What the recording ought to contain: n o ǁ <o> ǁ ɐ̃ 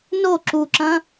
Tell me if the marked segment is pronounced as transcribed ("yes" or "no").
no